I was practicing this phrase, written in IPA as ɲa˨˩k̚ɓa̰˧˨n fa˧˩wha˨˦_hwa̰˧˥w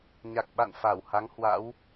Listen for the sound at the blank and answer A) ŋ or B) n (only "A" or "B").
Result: A